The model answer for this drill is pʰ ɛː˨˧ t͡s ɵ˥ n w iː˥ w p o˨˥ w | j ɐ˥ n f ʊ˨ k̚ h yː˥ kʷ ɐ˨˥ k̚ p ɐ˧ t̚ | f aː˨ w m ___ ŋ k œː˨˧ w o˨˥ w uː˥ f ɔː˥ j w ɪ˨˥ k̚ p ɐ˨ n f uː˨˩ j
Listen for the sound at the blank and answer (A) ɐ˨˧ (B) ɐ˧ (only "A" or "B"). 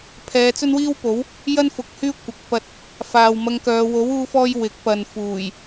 B